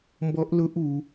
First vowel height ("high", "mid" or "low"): mid